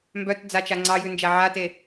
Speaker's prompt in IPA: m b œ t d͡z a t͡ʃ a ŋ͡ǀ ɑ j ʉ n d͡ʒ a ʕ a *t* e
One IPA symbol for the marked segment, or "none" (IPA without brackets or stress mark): t